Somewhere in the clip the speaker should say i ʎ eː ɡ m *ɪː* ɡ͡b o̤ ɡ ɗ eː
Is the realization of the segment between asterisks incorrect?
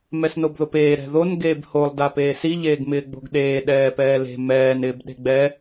no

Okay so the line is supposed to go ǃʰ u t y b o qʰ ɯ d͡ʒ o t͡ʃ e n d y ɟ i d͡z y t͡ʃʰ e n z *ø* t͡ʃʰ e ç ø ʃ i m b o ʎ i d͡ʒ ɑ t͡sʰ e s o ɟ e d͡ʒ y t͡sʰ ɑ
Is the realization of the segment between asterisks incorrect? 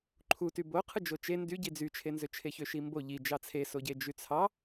no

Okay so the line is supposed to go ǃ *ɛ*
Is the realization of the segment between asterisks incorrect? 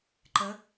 yes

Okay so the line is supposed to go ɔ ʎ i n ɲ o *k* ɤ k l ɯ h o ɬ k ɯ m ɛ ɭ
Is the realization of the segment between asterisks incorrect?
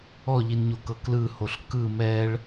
no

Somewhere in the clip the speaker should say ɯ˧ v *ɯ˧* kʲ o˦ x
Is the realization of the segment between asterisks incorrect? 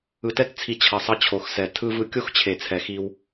no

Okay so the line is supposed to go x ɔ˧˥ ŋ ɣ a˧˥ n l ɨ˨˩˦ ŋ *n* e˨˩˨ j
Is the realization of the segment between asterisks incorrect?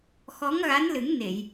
no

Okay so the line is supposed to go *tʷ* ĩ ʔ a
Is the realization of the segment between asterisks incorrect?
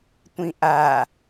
no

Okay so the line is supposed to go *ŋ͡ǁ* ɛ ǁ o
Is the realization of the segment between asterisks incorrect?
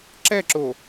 yes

